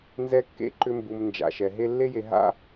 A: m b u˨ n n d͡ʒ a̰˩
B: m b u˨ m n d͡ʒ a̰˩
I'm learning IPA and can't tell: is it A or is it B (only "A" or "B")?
B